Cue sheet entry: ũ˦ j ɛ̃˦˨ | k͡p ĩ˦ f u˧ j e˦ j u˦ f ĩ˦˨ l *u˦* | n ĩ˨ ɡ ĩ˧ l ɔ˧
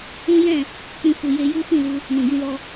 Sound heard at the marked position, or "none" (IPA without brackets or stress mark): u˧